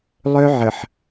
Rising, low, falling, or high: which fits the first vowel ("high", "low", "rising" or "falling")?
high